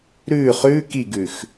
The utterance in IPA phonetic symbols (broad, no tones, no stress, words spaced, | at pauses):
ɾʉ χʉ kiɡʉx